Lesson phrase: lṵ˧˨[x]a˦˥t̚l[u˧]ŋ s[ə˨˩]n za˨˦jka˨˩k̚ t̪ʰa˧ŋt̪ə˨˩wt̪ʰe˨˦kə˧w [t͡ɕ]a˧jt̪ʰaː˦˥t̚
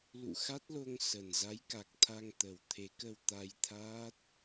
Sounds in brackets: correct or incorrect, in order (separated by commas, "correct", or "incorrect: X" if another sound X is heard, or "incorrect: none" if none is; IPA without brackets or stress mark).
correct, incorrect: o˧, correct, incorrect: t̪